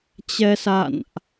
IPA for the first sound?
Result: t͡ɕ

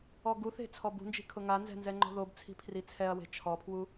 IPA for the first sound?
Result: ɔ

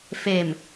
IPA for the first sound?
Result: f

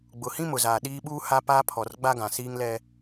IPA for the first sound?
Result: ɡ͡b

